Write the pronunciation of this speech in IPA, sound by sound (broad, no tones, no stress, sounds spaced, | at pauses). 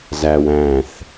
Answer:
z æ w æ̃ θ